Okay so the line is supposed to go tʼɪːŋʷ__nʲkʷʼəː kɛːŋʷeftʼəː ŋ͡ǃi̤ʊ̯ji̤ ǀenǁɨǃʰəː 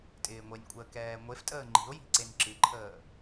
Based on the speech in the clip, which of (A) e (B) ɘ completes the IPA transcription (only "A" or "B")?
A